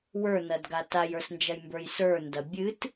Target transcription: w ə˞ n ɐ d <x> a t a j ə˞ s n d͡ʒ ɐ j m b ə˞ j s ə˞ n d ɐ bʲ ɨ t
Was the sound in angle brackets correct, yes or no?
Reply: no